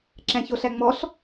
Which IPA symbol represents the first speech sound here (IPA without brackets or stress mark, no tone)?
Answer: ǁ